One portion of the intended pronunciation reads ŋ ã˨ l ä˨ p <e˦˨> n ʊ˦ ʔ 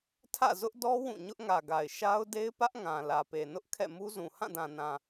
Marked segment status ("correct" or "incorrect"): incorrect